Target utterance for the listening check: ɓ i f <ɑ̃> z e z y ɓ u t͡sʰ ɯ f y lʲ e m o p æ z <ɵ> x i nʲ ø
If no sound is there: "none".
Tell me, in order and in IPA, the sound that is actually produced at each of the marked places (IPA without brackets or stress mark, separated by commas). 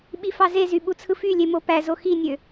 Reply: ɑ, o